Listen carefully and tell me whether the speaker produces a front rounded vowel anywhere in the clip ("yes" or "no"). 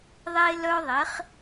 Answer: yes